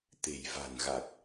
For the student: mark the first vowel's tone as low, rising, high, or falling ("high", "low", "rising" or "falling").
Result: low